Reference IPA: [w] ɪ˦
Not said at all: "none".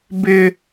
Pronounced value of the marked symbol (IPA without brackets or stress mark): b